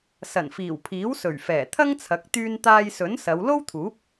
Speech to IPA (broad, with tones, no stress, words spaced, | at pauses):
sɐ˨˩nfiː˨˩wpʰiː˨˥wsɵ˨˩ɥ fɛː˨˩t̪ʰɐ˥ŋt͡sʰɐ˨˥k̚ t̪yː˧nt̪aː˧jsɵ˨˥nsɐ˨˧w lo˥wt̪ʰuː˨˥p̚